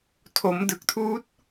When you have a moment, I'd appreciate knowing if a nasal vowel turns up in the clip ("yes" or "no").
no